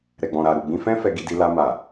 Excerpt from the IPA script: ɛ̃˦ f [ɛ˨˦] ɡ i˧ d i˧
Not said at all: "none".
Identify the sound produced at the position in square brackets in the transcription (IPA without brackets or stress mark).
ɛ˧